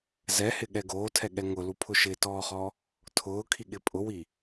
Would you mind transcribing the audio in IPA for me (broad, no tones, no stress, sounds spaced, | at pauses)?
z ɛ h ɪ ɠ ɛ ɡ oː tʰ ɛ ɠ ɛ ŋ ʊ l u pʰ ʊ ʃ ɪ t ɔː χ ɔ | tʰ ʊː kʰ i ɠ ɪ pʼ ʊ w i